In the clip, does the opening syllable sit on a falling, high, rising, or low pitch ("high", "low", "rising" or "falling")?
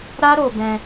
high